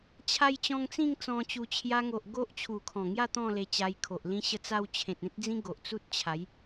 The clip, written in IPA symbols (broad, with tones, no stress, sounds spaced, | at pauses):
t͡ɕʰ a˧ j t͡ɕ ɔ̃˧ ŋ t͡s ĩ˥˧ ŋ t͡s ɔ̃˧ t͡ɕ u˧ t͡ɕʰ j a˧ ŋ o˨ ʔ ɡ o˦ ʔ t͡ɕʰ u˨˩ kʰ ɔ̃˨˩ ŋ j a˥˧ t̪ ɔ̃˥˧ l e˧ t͡ɕ a˧ j kʰ o˨ ʔ l ĩ˦ ɕ ə˧ t͡s a˧ w t͡ɕʰ ẽ˨ t̚ ẽ˦ t̚ d͡z ĩ˦ ɡ o˨ ʔ t͡s u˦ t̚ t͡ɕʰ a˨˦ j